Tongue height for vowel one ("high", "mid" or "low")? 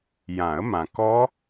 low